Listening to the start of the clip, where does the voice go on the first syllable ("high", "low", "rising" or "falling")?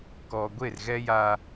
low